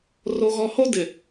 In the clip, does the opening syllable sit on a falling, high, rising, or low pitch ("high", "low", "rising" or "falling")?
low